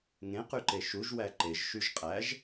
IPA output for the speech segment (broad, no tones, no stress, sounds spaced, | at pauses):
ŋ ẽ q y ǃ e ʃ u ʒ w æ ǃ e ʒ ʃ y ʒ qʼ æ ʒ